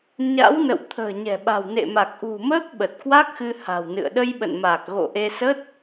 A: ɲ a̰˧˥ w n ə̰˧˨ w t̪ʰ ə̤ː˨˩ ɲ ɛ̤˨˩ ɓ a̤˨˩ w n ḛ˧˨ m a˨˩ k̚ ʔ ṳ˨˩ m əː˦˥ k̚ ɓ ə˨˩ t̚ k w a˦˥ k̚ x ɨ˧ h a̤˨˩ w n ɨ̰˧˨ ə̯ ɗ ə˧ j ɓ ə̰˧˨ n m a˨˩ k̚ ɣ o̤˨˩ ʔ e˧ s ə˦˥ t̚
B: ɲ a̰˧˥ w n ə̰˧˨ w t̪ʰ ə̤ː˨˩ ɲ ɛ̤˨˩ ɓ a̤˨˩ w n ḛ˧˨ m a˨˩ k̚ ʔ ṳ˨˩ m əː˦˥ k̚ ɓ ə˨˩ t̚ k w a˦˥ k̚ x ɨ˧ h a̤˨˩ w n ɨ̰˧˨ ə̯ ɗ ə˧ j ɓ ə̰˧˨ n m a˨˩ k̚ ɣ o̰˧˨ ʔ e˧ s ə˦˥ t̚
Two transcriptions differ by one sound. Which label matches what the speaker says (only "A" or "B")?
B